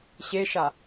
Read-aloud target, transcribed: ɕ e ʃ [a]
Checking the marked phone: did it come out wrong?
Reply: no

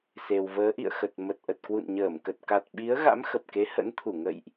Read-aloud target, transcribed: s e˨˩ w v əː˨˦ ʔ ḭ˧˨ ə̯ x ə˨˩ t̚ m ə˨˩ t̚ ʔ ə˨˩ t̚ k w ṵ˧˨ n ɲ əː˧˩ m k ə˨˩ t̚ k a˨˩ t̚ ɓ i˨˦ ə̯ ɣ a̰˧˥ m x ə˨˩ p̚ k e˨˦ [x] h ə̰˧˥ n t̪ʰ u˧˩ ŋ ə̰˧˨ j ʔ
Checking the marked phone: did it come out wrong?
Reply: yes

